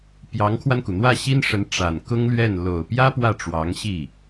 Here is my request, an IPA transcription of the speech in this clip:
p j ɑ˧˥ ŋ kʰ w a˧ n k u˩ n̪ w ä˥˩ ɕ i˥ n ʂ ə˧˥ n ʈ͡ʂ a˨˩ n k ʊ˥ ŋ l ɥ ɛ˥˩ n l o˨˩ ʊ̯ p j ä˥ p w ä˥˩ ʈ͡ʂ w ɑ˧˥ ŋ ɕ i˥˩

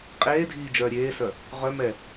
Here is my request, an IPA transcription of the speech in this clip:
qʼ eː dʱ iː d͡ʒ œː ɾʲ eː s œ | ʁ œ m ɛ

